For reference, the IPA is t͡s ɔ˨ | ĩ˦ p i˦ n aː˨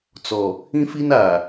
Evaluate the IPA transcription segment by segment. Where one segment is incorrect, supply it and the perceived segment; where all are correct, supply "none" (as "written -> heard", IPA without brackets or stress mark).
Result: p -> f